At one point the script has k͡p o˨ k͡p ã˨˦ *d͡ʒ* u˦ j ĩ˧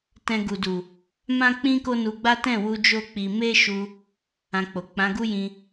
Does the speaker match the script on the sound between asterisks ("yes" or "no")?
no